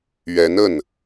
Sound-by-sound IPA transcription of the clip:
ɥ ɛ˧˥ n ə˥˩ n

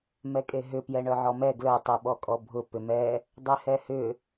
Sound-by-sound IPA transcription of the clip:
m ɛ kʼ e ɦ ʏ p j ɛ ɳ œ ʕ ɔ m ɛ ɡ l œ tˤ y ɓ ɔ kʼ ɔ bʱ ʊ p ʏ m ɛ | dˤ y h ɛ h ʏ

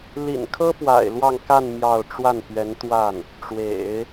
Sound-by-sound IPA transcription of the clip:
l ḭ˨˩ n kʰ ɤ˥ p w a̰˨˩ ɪ̯ l w ɑ˥˧ ŋ k a˥˧ n m j ɑ˥˧ ʊ̯ ʈ͡ʂ w a˥˩ n p ɥ ɛ˧˥ n t̪ w a˥˩ n | ʈ͡ʂ w ḛ˨˩˦ ɪ̯

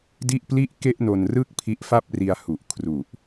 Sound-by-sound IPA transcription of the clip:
d i˥˩ ʔ p l i˥˩ ʔ k e˥˩ ʔ n o˧ n r ɯ˥˩ k̚ pʰ i˦˥ ʔ f a˥˩ p̚ r i˧ a̯ h u˨˩ ʔ kʰ r u˨˩ ʔ

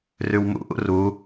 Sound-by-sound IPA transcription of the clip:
r ʉ w m ṵ ʔ ṵ r u

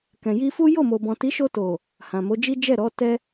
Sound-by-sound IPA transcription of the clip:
k ɛ̃˨ j i˧ f u˦ j o˦˨ m o˨ b ɔ̃˨ t i˨˦ ʃ o˧ t o˨ | h ã˨ m o˨˦ d͡ʒ i˦ d͡ʒ ɛ˦˨ ɾ ɔ˨˦ t ɛ˦

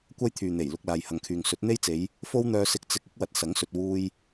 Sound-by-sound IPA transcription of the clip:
kʷ ɐ˥ j t̪ʰ yː˨ n̪ e˨˩ j l ʊ˧ k̚ l aː˨ j h ɐ˨ ŋ kʰ yː˨ ŋ s ɵ˨˥ t̚ n̪ e˥ j t͡s e˨˧ j | f o˥ w n̪ œː˧ s ɪ˧ k̚ t͡s ɪ˧ k̚ ɪ˥ k̚ w ɐ˨ t̚ s ɐ˨˥ ŋ s ɵ˨ t̚ w uː˧ j

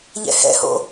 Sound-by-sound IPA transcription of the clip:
ʎ ɛ̰ h ɛ̰ h o̰

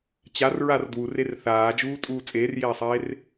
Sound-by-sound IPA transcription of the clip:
t͡ɕ a r ɹ a r d w u r e r θ aː d͡ʒ uː tʼ uː t͡sʼ eː r j eː sˤ eː r

